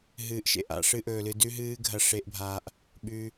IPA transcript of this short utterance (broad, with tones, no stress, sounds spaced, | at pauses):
ɦ ɨː˨˦ ʔ ʃ ḛ˨ ʔ a̰˧ ʂ ɨ˦ ʔ ɵː˧ l ɨ˧ d ʉ˦ ɦ ɨː˦ ɡʱ ɐ˦ ʂ e˦ ʔ bʱ a˦ ʔ | ɓ ʉ˧